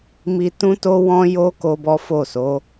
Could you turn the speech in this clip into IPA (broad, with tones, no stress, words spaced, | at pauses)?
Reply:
mi˧ tũ˦to˦wɔ̃˦ jo˦ ko˦bɔ˦ fo˦˨so˨˦